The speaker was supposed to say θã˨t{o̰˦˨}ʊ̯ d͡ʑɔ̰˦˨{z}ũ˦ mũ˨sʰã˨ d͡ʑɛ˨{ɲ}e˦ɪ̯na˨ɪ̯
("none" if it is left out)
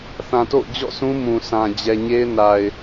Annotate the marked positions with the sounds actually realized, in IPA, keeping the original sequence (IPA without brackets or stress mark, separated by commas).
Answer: o̰˦˨, s, ɲ